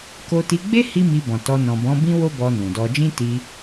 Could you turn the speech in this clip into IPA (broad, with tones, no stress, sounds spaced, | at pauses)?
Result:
k o˧ t i˧ ɡ͡b e˦ h i˦ m i˧ b ɔ̃˨ t ɔ˧ n ɔ̃˨ b ɔ̃˨˦ b ĩ˦ w o˦ b ɔ˧ n ũ˨ d ɔ˧ d͡ʒ ĩ˦ t i˧